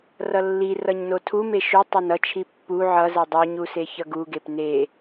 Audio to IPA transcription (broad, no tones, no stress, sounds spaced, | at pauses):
r ʌ lː i r ʌ ɲ n o tʰ u m e ʃ u tˤ e n ʌ t͡ʃʰ i pː u ʕ ʌ z ɛ dˤ o ɲ u s e ç ʌ ɡ u ɡ e p n e